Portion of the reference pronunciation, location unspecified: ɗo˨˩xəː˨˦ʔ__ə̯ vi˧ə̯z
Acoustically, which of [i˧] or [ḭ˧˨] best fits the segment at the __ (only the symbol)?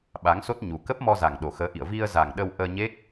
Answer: ḭ˧˨